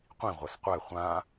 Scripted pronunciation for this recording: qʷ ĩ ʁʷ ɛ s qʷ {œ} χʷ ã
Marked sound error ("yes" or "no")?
yes